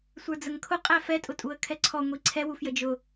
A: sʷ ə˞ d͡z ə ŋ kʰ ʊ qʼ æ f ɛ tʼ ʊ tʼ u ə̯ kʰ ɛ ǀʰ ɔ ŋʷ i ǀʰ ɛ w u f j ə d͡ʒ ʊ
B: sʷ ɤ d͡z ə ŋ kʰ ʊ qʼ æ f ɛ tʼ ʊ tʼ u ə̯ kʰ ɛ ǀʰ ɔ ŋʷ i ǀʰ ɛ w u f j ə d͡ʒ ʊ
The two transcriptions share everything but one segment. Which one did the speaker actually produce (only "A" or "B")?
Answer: A